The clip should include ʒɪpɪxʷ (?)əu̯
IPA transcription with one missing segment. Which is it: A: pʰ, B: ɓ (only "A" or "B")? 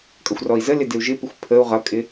A